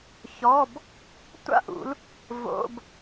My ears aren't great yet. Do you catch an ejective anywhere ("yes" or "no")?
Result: no